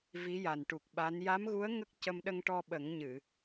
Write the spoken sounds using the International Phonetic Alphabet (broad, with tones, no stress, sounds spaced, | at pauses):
v i˧˥ j a˨˩ n ʈ u˨˩ k̚ ɓ a˧˥ n j a˧˥ m ɣ u˧˥ ə̯ ŋ ə˦˥ k̚ c ə˧ m ɗ ə˧ ŋ ʈ ɔ˧ ɓ ə˨˩˦ ŋ ɲ ɨ˨˩˨